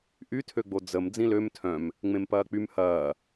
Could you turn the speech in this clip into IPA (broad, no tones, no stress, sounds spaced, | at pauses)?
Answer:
ʔ y tʰ ø ɡ͡b o d͡z ə m d͡z ĩ l ø m tʰ œ̃ m | ŋ͡m ẽ m p ɐː k͡p y m h ɐː